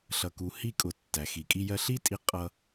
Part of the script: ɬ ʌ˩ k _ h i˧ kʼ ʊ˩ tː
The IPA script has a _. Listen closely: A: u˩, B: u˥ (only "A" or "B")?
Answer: A